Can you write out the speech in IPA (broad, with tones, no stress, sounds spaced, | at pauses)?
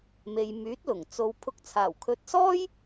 m e˨ j m yː˨˥ t̚ l ʊ˨˩ ŋ t͡s o˨ w pʰ ʊ˨ k̚ t͡sʰ aː˨˩ w kʰ ɵ˨˥ t̚ s ɔː˥ j